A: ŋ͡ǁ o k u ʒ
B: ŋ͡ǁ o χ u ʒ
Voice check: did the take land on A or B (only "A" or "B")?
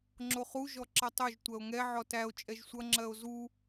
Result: B